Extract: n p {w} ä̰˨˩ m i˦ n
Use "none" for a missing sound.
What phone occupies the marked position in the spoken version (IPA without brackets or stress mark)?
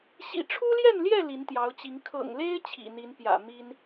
j